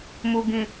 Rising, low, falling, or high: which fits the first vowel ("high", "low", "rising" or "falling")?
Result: low